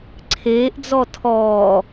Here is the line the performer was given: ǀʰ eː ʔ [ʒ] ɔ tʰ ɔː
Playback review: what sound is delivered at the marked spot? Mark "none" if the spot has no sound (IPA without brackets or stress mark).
d͡z